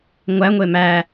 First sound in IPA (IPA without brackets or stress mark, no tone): ŋʷ